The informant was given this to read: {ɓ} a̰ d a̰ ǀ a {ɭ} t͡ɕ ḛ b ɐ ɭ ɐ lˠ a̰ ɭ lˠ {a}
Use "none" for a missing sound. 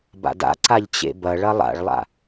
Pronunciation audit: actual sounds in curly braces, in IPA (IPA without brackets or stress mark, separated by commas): b, ʎ, a̰